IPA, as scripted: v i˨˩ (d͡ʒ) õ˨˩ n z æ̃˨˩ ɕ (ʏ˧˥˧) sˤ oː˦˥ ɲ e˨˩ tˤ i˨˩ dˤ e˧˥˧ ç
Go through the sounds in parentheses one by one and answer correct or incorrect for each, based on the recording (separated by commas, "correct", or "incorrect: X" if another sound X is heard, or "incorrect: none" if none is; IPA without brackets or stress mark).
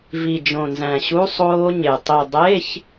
correct, incorrect: u˧˥˧